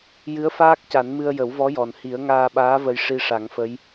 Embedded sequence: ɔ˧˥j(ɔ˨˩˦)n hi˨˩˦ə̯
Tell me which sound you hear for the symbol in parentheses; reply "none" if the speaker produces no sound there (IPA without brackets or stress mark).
ɔ˨˩